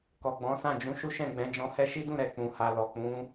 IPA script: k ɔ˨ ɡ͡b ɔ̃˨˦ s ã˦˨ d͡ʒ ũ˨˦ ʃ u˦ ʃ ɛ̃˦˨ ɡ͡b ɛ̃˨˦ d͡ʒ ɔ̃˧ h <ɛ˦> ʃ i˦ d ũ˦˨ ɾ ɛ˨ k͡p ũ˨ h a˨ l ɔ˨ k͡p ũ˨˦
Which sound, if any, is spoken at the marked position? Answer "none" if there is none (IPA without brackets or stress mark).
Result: ɛ˦